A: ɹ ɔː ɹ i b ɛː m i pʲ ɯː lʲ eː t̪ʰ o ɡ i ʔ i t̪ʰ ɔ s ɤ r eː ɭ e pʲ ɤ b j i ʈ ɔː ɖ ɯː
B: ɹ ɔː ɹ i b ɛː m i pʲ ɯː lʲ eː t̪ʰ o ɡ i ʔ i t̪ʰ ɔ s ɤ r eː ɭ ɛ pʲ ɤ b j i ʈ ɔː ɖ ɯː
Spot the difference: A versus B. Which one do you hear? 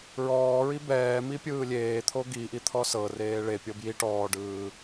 A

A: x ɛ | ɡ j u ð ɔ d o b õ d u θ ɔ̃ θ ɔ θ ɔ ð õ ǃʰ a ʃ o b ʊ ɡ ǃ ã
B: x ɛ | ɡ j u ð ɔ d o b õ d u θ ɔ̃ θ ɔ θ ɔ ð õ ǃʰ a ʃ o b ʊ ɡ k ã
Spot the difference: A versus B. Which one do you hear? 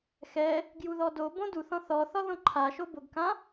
B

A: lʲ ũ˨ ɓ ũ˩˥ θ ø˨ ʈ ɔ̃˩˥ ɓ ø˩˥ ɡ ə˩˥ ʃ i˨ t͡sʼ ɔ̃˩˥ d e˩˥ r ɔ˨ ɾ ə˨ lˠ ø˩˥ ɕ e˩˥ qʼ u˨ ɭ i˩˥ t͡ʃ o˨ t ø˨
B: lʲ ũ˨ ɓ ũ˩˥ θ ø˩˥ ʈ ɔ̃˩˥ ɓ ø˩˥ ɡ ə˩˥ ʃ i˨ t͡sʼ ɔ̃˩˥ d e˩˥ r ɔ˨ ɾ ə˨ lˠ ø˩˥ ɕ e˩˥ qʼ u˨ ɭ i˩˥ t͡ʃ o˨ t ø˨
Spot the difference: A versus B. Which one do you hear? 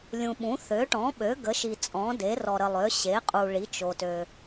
B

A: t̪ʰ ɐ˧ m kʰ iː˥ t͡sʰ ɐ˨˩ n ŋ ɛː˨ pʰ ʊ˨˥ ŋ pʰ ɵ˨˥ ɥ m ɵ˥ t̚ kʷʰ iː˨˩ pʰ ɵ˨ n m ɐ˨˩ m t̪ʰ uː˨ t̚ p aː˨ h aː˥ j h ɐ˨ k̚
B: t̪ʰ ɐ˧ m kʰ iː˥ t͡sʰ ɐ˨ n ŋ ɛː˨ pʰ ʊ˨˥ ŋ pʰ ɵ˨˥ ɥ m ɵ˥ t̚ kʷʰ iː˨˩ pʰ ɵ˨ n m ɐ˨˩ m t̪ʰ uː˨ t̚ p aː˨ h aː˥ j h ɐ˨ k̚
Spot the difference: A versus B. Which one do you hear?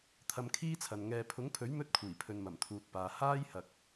B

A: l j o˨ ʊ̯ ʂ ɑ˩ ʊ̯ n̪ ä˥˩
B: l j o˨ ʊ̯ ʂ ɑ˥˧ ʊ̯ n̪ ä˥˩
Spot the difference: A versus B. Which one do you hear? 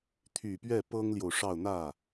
B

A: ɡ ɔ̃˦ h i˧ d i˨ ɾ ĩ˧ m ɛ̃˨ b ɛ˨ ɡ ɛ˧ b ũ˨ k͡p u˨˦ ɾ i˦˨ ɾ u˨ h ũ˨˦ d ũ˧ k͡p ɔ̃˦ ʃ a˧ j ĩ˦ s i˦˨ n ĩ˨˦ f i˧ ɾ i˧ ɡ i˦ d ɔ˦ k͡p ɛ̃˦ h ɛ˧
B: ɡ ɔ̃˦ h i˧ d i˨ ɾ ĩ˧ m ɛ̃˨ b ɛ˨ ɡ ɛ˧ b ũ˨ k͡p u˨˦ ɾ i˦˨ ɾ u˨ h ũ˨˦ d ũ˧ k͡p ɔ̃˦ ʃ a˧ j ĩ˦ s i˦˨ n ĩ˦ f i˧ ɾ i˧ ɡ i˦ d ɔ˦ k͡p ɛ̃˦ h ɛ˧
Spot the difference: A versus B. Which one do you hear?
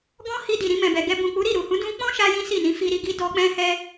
A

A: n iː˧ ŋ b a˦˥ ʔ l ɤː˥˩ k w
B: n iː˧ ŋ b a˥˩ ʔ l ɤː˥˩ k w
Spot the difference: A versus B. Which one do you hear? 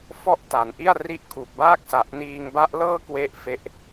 A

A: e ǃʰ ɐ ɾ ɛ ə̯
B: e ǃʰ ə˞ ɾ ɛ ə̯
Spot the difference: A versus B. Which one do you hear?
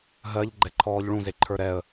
B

